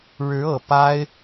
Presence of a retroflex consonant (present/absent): present